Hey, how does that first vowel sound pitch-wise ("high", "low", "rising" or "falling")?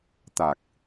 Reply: low